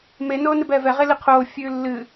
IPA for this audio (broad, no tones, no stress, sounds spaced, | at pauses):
m e n oː n ɨ b ɛː v ɛ ʁ e l i qʰ oː fʲ ʉː lː ɨ